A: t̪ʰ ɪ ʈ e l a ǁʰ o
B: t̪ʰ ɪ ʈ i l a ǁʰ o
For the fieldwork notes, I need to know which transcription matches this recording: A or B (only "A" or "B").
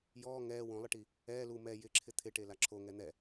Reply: A